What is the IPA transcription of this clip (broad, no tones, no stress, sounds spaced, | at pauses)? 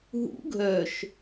ɦ ṵ ɡʱ œ ʃ